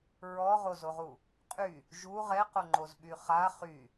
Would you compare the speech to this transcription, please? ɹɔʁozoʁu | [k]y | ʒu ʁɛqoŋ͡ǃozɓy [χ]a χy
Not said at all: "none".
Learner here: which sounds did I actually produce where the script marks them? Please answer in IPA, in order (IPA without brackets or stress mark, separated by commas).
qʼ, χ